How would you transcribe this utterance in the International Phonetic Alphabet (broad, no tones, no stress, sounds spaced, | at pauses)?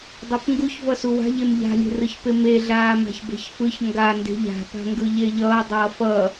dˤ o p ŋ ɡ u ç v ʌ s u w a̤ ʎ e m ʎ a̤ lʲ e̤ r ɯ ç p e m e ɮ aː m a̤ ç b e̤ ç f ɯ ç ŋ ɡ a n d e̤ ʎ a̤ p a̤ ŋ ɡ ɯ ʎ e ʎ ʌː dˤ ʌː f ʌ